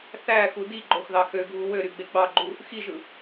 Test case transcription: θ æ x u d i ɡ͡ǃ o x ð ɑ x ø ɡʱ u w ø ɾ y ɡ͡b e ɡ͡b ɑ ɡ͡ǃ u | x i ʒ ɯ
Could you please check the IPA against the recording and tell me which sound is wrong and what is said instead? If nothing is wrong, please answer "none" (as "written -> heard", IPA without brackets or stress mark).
none